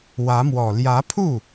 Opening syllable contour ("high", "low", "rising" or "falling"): rising